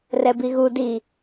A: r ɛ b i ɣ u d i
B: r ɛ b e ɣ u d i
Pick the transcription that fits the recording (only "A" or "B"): A